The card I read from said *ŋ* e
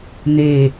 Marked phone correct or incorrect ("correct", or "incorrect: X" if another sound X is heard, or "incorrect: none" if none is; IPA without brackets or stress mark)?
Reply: incorrect: n̪